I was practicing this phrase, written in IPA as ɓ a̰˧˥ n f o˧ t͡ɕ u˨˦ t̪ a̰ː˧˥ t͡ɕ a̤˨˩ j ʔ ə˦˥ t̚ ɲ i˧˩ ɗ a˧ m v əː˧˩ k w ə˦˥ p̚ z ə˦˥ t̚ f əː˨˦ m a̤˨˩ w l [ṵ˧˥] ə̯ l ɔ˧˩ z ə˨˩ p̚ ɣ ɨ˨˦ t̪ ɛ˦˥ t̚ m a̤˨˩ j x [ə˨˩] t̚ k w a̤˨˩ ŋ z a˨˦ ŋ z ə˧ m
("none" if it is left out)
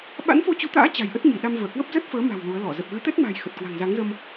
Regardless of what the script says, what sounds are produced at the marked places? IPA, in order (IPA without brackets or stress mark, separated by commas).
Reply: u˨˦, ə˨˩